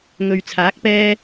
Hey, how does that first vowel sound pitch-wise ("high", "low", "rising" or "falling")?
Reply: low